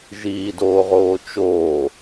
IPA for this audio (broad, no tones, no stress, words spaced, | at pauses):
ʒiːdoːʁoː t͡ʃoː